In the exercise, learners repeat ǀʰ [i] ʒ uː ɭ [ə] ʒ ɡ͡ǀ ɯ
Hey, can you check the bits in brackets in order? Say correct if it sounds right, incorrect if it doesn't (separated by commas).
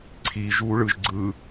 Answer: correct, incorrect